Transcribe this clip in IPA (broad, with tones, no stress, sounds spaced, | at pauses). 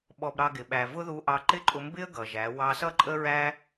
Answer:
ɓ ɔ˧ b ɾ ɑ˧ ɡ ɪ˨ ɓ æ˨ v ʊ˦ ð u˧ ʔ ɑ˧ ǃ ɪ˦ ǃʼ ʊ˧ m b ɪ˦ ə̯ ɡ ʌ˨ ʒ æ˨˦ w ɑ˧ s ʌ˦ ǃʼ ə˦ ɹ æ˦